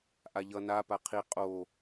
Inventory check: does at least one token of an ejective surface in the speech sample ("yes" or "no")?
yes